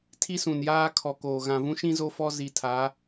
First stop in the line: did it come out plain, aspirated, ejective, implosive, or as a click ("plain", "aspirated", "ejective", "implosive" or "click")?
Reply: aspirated